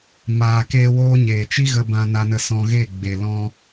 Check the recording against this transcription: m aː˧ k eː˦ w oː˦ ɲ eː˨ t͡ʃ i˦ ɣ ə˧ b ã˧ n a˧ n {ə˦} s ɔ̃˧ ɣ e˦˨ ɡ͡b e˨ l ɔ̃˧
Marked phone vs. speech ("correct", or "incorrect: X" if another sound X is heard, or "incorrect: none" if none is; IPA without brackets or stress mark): incorrect: ə˧